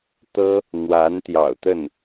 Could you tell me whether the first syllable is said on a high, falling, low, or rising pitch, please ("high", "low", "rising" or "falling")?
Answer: high